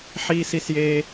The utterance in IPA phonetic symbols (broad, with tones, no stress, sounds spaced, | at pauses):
ħ iː˦ s i˦ s j eː˦